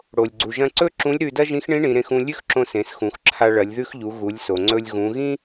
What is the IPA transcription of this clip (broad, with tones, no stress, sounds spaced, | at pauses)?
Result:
ɽ o˩ lʲ ɡ͡ǀ u˩ ʒ ɐ̃˧ ǀ ɵ˥ ǁ ũ˧˥ lʲ ɾ ʉ˧ d ɐ˥ ʒ ĩ˧˥ x ɳ ĩ˧˥ ɳ ĩ˩˧ ɾ ẽ˧ x ũ˧ lʲ ʉ˥ x ǁ õ˧ s ẽ˩˧ s x ũ˩˧ x ǁʰ a˧ ɭ ɐ˩˧ lʲ ð ʉ˧ x ʎ u˩˧ ɣ u˩˧ lʲ s o˩ ŋ͡ǀ ɵ˧ lʲ ɣ ũ˩˧ ɣ ĩ˥